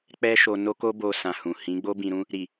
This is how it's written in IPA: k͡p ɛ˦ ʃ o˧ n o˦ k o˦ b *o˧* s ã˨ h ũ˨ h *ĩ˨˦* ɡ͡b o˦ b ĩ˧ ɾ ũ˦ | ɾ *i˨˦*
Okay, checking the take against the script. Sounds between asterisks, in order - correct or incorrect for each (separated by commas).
correct, correct, incorrect